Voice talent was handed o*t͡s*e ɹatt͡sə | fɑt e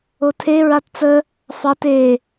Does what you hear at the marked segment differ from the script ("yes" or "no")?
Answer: yes